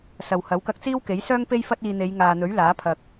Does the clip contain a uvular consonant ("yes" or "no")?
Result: no